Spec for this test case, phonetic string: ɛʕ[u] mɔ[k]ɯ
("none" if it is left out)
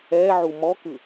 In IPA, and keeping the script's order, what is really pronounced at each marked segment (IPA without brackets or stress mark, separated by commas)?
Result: u, k